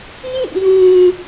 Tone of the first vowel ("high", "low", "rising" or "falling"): falling